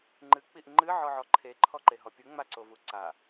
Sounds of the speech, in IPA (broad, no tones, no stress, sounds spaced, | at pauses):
ŋ͡ǃ ɨ k͡p i ʔ ŋ͡ǃ ɨ ʕ ɔ ʕ ɔ ǃʰ e ǃʰ ɔ ǃ e ɦ ɔ pʲ u ŋ͡m a ǀ o v u ǀ a